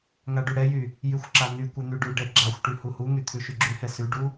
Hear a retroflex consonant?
yes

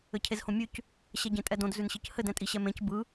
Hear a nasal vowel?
yes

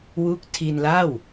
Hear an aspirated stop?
yes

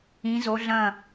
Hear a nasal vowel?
yes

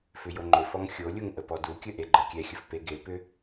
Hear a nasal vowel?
no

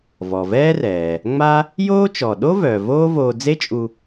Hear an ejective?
yes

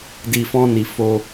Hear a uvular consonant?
no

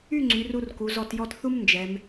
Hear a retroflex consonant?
no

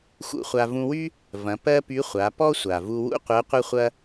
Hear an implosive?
no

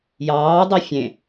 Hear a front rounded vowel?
no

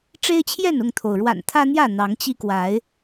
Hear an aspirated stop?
yes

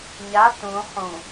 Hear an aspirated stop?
no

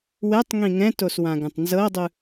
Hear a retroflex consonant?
no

